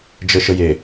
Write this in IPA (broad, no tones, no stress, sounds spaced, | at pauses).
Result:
d͡ʒ ə ʃ ə j e